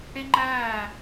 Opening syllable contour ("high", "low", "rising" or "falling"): high